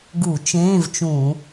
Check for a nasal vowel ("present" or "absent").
present